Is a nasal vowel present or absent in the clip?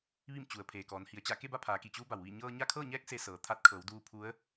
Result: absent